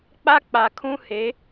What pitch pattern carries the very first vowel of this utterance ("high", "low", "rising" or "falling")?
high